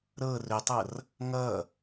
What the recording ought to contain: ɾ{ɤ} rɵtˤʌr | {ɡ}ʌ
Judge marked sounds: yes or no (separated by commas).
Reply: yes, no